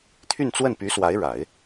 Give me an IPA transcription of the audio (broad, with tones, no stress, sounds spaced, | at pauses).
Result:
t̪ʰ y˥˧ n t͡s w ə˥˩ n p y˧˥ s w a˧˥ ɪ̯ ɻ a˨˩˦ ɪ̯